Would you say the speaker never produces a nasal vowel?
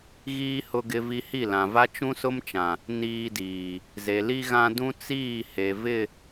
no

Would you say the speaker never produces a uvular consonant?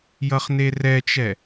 no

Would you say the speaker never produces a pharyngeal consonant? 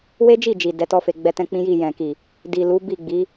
yes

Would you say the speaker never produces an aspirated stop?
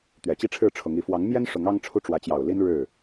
no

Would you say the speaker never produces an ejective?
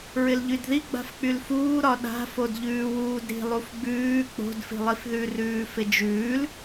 yes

